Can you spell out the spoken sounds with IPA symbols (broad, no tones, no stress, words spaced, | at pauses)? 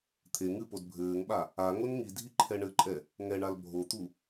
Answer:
t̪ʰe ŋɨpod bʱɘːŋɓa | a ŋonŋidʱi ǃʰɛɳɘǃʼɛ | ŋɛɳal bʱot̪u